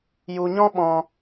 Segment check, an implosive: present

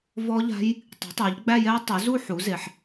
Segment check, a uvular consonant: absent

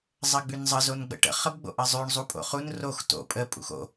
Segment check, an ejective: present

